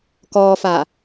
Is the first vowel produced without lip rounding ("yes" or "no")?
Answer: no